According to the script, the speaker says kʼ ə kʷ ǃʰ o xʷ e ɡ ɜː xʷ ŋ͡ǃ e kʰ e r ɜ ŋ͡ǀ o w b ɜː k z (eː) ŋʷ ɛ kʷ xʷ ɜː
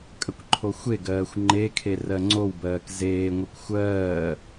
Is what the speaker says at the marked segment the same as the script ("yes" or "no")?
yes